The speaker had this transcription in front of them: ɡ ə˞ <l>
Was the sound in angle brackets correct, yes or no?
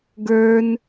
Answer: no